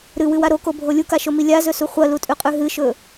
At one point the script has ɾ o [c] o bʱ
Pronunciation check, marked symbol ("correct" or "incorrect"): incorrect